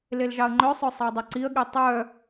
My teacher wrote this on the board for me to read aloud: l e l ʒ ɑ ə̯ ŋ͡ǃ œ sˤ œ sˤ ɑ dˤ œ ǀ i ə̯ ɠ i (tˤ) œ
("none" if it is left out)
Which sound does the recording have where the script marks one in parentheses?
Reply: tˤ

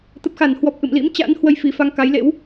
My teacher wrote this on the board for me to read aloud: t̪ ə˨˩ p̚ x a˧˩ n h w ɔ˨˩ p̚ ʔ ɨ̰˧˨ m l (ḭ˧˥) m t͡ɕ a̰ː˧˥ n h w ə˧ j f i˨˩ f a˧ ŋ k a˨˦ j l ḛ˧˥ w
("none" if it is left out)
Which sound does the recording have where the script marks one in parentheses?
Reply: ḭ˧˥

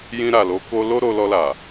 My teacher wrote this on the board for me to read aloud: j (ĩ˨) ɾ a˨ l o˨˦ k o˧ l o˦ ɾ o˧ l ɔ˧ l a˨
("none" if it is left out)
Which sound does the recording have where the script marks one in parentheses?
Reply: ĩ˧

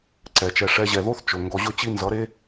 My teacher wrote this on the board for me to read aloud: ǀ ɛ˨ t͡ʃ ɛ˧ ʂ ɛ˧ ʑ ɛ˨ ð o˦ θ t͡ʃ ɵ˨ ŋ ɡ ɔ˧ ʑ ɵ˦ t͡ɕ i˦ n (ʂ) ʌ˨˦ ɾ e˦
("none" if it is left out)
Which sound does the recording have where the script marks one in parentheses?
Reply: z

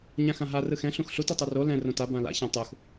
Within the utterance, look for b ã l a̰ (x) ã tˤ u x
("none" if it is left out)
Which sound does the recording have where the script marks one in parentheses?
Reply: ç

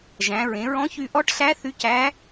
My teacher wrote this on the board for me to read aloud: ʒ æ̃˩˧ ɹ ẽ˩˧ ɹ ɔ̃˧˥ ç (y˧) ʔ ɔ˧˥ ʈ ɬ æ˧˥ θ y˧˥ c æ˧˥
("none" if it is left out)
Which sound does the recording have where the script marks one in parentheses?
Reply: y˧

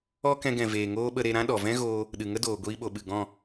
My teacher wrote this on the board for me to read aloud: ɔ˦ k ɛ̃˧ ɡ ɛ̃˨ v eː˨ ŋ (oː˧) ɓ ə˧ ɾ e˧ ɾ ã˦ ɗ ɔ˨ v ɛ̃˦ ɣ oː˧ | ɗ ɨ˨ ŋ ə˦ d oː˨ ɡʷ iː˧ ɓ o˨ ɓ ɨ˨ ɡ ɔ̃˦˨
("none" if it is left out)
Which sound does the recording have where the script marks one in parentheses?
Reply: oː˦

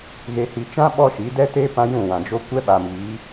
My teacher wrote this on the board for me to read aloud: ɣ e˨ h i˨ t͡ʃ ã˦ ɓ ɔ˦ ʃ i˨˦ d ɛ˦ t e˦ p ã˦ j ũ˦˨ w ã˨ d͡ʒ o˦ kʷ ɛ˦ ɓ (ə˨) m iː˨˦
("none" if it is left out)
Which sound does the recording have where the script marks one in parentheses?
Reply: a˨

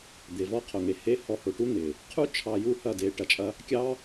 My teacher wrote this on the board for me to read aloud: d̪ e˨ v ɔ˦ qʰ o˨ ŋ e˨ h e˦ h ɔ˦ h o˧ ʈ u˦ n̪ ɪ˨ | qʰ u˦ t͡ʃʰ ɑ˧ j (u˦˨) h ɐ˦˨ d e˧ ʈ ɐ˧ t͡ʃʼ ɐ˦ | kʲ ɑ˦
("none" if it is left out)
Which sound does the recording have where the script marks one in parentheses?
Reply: u˦˨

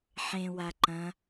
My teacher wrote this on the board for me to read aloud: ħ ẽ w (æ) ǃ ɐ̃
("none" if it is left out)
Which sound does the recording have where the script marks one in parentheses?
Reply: a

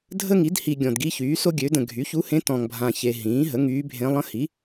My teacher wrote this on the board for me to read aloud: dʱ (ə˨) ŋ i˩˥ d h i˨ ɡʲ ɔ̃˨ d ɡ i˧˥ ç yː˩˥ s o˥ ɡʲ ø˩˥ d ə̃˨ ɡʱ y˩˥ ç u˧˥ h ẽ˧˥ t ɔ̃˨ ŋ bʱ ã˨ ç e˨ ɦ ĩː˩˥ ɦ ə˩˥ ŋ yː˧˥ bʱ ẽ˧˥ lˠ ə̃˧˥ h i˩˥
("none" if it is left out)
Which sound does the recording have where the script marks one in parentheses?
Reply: ə˥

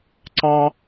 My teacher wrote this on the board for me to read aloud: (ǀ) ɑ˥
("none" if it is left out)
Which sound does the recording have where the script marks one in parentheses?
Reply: ǀ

